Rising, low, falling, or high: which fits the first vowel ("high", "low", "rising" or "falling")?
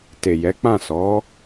low